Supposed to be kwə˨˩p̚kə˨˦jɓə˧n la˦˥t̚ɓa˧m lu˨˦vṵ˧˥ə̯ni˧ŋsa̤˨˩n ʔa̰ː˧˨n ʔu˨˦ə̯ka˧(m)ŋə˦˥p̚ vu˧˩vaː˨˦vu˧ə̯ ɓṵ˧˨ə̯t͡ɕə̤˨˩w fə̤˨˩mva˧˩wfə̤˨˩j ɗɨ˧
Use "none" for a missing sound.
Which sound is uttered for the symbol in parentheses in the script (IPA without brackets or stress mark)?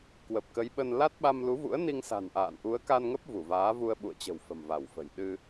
n